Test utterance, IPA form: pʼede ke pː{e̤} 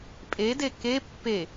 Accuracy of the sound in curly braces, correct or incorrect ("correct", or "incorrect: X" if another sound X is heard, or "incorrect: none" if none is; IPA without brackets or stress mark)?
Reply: incorrect: e